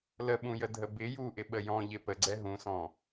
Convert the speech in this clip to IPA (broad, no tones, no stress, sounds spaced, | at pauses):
l ə ɓ ũ j ə dʱ ə b ɪ j u ʔ ɪ ɓ ə j ɔ̃ ʎ ɪ p ə ɡ͡ǀ ɛ ɦ ũ s ɔ̃